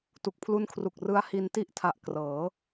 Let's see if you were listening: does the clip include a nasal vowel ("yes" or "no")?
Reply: no